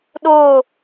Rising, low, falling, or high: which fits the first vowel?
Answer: falling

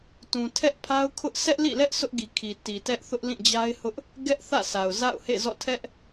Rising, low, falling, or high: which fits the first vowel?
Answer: low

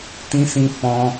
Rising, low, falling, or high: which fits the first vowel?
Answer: high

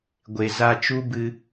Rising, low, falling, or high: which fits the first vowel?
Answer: low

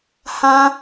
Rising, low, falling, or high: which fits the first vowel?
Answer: high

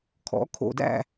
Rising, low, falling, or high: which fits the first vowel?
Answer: rising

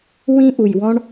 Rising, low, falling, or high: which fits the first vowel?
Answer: high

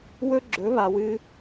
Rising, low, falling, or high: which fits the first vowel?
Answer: high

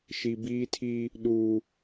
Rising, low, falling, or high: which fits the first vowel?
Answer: low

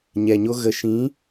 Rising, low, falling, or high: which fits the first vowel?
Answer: low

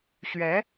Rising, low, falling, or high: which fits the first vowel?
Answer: rising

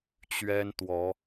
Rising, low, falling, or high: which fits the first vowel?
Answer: high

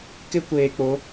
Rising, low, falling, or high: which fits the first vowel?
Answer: high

